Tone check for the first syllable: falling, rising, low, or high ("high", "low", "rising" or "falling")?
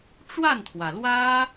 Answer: falling